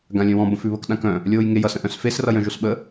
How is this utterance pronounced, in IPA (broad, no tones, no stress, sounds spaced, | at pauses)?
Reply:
ɡ ã lʲ œ̃ w ɔ̃ b ə̃ f ʉ β ə k ɗ ã k œ̃ | lʲ oː j ŋ e j ʌ s ə̃ ʔ œ̃ s f e s r ʌ j œ̃ ʒ o s ɓ ə